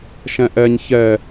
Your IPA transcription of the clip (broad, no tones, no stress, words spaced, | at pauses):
ʃɛ̃ʔɛɲ çɛ